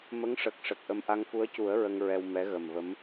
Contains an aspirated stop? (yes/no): no